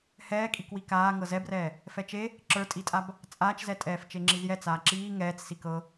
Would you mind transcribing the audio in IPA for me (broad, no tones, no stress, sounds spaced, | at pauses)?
h ɛː kʼ i k w i k aː ŋ ɤ z ɛ b r ɛː | f ɛ t͡ʃ e | ǁ ə˞ tʼ i tʼ a b | t͡sʼ aː t͡ʃ z ɛ tʼ ɛː f t͡ʃ e ŋ͡ǁ i z j ɛ t͡s aː ǁ iː ŋ ɛː t͡s s i k ɤ